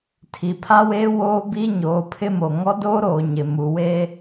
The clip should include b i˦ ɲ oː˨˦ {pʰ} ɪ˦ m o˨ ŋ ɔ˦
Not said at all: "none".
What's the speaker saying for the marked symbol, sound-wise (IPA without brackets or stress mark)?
pʰ